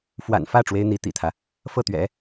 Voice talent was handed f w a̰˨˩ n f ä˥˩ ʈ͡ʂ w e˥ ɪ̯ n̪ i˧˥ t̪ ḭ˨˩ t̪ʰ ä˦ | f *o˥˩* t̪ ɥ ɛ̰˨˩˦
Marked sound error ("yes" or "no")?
yes